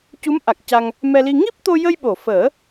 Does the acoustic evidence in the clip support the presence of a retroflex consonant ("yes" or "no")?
no